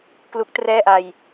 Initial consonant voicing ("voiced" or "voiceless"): voiceless